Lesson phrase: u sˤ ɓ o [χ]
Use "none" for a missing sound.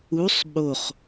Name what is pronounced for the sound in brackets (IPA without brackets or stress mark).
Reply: χ